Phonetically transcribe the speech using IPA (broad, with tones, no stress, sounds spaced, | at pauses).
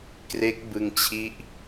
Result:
k r e˦˥ k̚ b ɯ˧ ŋ t͡ɕʰ i˦˥ ʔ